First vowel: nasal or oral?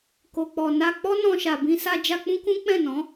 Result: oral